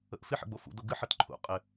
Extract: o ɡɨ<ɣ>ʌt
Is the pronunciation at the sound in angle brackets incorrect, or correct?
incorrect